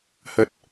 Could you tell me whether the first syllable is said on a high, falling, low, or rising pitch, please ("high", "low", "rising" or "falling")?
low